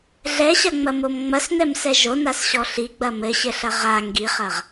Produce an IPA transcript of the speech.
ɮ ɛ ɕ ɐ ŋ͡m ɐ m o m ŋ͡m ɐ s n ɛ m s ɛ ʒ o n a s ɕ ɔ ɬ i ɡ͡b ɐ m ɘ ɕ ɘ ɬ ɐ ʁ a ŋ ɡ i χ ɐ ʁ

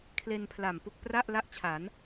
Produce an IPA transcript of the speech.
kʰ l e˧ n pʰ l a˨˩ m p u˥˩ k̚ p r a˥˩ ʔ l a˥˩ ʔ t͡ɕʰ a˩˦ n

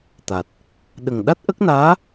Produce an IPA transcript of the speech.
t̪ a˨˩ t̚ | ɗ ə˨˩ ŋ ɗ a˦˥ t̚ ʔ ə˦˥ k̚ n aː˧˥

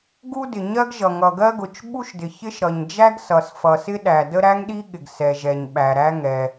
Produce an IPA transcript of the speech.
ɡ u˥ d ɪ˩ ɲ ɜ˥ ɡ ʒ ʌ˩ ŋ ʌ˩ ɡ ɜ˥ ɡ ʊ˩ t͡ʃ ɓ u˥ ʃ d ɪ˩ ç ɪ˥ ʃ ɾ ʌ˩ ɲ d͡ʒ æ˥ ɡ s ʌ˩ s f ʌ˩ s ɪ˥ ɗ æ˩ d ə˥ ɾ æ˥ ŋ ɗ i˥ ɠ ɪ˩ ɡ s ɛ˩ ʒ ɛ˩ ɲ ɓ æ˩ ɾ æ˥ ŋ ɛ˩

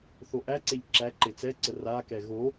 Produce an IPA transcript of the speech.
θ o ʔ æ ǀ e ʎ ǁ æ ǃ e t͡s ɛ ǀ ə r a k ɛ ɣ o

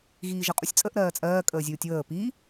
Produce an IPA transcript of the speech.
ɣ iː ʒ ə qʼ u sʲ t͡sʼ ə ʔ ɾ ɜː t͡sʼ ɜː kʼ əː zʲ uː tʲ w əː p i

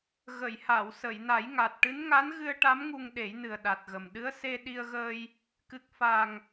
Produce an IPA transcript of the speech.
ɣ ə˨˩˨ j h a˨˩˨ w s ə˨˩˨ j n a˨˩˦ j ŋ a˨˩ t̚ ʈ ɨ˧˥ n ŋ a˧˥ n ɣ ɨ˧ ə̯ ʈ a˧˥ m ŋ u˧ ŋ ɗ e˨˩˦ j n ɨ˨˩ ə̯ ɗ a˨˩ t̚ ɣ ə˨˩ m ɗ ɨ˧˥ ə̯ s e˧ ɗ i˧ ə̯ ɣ əː˧ j | k ɨ˨˩ k̚ f a˨˩ ŋ

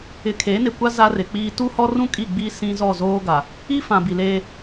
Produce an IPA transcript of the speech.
ɪ˨ kʰ eː˨˦ n ɪ˨ kʷ a˦ z a˦ r ɪ˨ k͡p iː˦ t u˦ h ɔ˦ r ũ˦ kʼ i˦˨ ɡ͡b i˦ s ĩ˦ z ɔ˦˨ z oː˦ ɡ a˨ | i˦ f ã˨ b i˨ l eː˦

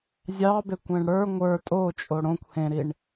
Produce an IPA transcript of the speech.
zʲ ɑ b e kʷ ẽ ɳ ɽ ə˞ ŋʷ ə˞ tʼ o t͡ʃʼ o ɽ õ kʷ h ẽ ɾ i ɳ

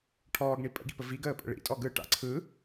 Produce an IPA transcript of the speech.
ʈʰ ɔː ɡ ɳ i pʼ ə̰ ɡ ḭ p ə v i ɡ əː pʼ ə̰ ɭ ḭ tʼ ɔ ɡ ɯ ʈ a̰ ǀʰ ɯ

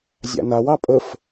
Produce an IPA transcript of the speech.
zʲ a̰ n a w ɑ pʼ ə f

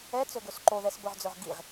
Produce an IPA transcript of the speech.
ɛ t͡s ɵ ɡ ɵ s ǃ o ð ɛ s b ɵ ʁ d͡z ɵ ʁ ɡ i ʁ

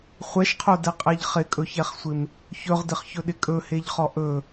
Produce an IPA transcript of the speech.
χʷ ɛ ʃ qʰ o d ɛ qʼ ɛ ʎ χ ɪ kʼ ɵ ç ɛ χ sʷ ɪ m | ç ɵ ʁ d ɪ χ ç ɵ ɗ ɪ kʼ ɵ h e ʎ χ ɔ ʔ ɵ

